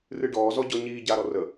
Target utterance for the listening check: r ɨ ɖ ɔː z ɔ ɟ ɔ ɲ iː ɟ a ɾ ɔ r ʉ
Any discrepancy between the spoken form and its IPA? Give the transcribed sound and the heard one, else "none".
ʉ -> ə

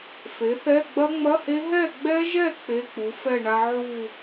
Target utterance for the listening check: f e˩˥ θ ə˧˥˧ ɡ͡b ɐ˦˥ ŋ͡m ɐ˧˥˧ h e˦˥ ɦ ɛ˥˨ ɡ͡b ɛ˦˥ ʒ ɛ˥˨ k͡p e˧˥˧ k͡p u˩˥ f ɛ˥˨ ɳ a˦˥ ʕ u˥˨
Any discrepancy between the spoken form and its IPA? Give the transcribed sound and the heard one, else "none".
ə˧˥˧ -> ɛ˧˥˧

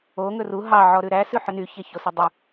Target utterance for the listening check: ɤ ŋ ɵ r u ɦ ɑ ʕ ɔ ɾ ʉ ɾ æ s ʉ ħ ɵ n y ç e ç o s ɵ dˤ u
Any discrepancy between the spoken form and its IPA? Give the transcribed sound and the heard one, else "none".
ɤ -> o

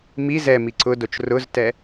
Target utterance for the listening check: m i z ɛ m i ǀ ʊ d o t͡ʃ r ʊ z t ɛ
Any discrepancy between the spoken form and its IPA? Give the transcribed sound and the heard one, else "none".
none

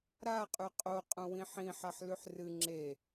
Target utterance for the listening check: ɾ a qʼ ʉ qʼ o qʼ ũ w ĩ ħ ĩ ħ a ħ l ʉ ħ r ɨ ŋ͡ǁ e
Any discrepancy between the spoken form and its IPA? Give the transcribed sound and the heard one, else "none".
none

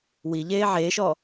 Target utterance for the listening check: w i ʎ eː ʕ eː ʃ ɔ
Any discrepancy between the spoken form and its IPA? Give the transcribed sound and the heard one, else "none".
none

